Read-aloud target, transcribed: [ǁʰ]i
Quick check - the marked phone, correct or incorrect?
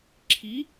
correct